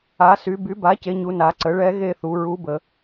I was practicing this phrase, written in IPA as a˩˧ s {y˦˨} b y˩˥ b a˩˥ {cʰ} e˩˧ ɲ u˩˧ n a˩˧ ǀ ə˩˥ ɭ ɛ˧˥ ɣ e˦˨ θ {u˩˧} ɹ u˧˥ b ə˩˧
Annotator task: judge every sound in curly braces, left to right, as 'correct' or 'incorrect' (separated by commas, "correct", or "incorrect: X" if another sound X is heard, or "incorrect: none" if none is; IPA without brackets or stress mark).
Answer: incorrect: y˩˧, incorrect: c, correct